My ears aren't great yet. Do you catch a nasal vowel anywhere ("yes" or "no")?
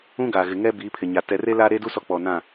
yes